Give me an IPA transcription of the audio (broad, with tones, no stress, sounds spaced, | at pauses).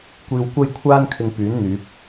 kʷ iː˧ w kʷ ɐ˥ j kʷʰ aː˥ n kʰ ɪ˧ ŋ p yː˨˥ n n̪ yː˨˥ p̚